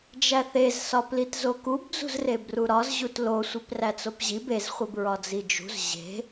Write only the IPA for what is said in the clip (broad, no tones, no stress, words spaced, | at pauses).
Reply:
d͡ʒæθez sɒplitzokub d͡zṳzrebruɾɒz ʑutlo sʷipræt͡sopʑib ez χʷibɹɒd͡zid͡ʒṳz ʑe̤